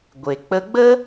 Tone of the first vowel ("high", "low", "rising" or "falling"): low